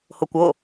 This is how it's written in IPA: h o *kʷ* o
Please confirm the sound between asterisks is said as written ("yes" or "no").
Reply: yes